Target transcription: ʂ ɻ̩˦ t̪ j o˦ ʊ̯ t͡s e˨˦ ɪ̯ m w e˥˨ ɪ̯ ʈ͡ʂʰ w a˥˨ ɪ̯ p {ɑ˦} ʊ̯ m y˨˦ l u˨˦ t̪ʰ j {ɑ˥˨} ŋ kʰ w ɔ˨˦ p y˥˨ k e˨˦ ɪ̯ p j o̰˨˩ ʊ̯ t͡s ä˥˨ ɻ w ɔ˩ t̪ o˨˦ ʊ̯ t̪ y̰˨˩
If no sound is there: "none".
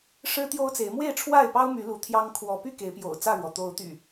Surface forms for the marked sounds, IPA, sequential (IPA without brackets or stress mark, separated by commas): ɑ˦, ɑ˦